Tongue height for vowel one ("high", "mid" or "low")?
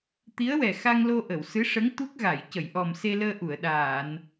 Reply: high